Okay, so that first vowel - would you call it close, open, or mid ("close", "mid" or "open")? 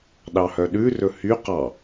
open